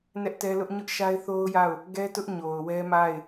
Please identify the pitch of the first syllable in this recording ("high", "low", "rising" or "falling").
high